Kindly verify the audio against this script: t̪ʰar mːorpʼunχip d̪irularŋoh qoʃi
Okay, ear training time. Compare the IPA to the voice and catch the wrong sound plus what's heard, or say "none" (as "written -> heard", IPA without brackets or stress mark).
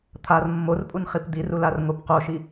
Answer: h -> p